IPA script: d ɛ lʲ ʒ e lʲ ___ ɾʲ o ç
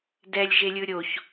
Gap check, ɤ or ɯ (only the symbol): ɯ